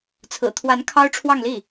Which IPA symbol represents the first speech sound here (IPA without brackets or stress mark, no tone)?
t͡sʰ